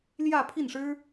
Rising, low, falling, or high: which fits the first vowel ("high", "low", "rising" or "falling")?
falling